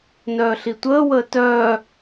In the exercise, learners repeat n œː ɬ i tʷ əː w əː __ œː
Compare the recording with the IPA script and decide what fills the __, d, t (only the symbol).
t